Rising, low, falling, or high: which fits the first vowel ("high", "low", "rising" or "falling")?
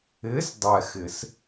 rising